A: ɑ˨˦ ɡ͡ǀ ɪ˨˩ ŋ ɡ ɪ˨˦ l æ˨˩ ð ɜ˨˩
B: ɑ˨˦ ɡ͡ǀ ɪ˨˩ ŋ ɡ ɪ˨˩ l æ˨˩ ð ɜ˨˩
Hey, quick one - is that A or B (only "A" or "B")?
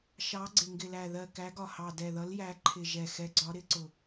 B